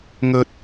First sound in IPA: ŋ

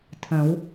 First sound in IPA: tʰ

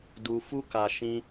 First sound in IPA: d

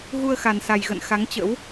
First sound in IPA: ɣ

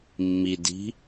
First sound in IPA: mː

